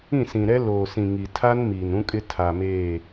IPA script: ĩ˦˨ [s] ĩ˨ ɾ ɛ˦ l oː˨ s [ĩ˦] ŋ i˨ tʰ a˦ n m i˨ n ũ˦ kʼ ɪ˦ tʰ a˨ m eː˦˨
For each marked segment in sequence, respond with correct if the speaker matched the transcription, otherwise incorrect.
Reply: correct, incorrect: ĩ˨

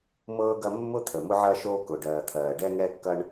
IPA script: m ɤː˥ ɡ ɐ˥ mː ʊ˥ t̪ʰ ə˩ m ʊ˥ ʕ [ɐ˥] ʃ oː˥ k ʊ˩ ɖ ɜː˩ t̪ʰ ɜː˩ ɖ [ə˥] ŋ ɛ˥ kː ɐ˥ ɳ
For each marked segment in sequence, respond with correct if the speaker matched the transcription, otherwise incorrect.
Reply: correct, incorrect: ɛ˥

